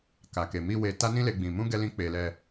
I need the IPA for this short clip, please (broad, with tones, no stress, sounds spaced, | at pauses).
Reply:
k a˨ k e˨ m i˧ w e˧ t a˦ n ĩ˦ l e˦ ɡ͡b ĩ˧ m ũ˦ ɡ ɛ˦ l ĩ˦ k͡p e˧ l ɛ˧